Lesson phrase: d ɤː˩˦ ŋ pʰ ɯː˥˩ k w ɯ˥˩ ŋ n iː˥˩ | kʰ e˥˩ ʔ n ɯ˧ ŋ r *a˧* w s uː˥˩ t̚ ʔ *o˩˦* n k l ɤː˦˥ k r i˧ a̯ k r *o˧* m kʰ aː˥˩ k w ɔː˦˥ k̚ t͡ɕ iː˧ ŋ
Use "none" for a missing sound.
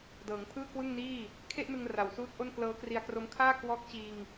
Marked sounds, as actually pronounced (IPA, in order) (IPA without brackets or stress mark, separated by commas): a˨˩, o˥˩, o˦˥